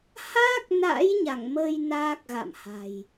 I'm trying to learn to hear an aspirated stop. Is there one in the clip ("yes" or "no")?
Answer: no